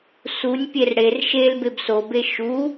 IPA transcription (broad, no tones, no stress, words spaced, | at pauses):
sunʲpʲer ɽer ʃel bebsobe ʃu